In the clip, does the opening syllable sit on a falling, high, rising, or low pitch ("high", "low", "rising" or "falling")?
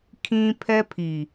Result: high